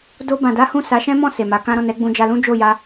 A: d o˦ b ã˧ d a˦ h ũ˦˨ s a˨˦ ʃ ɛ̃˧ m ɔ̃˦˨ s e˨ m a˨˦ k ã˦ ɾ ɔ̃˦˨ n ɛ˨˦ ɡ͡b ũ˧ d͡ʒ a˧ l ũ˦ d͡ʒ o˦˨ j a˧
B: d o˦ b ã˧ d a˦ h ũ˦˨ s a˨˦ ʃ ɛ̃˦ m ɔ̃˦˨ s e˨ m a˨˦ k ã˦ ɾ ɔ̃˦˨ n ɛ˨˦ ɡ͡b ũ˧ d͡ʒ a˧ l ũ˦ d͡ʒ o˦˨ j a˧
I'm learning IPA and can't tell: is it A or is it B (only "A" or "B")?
B